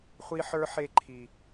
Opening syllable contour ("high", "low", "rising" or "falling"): high